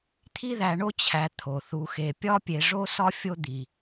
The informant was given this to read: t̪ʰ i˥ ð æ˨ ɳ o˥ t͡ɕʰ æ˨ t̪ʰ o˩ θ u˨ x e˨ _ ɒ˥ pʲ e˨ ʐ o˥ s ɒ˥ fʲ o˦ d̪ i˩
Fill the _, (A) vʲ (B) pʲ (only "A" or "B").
B